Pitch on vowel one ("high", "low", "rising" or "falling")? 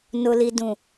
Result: low